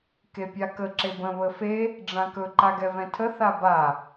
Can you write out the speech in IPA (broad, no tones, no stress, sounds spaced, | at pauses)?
k e pʲ a k ə ǁ e b ə̃ β ə f e | ɖ͡ʐ ã k ɵ ǃ a ɡ ɛ v ɛ̃ tʰ ə θ a b a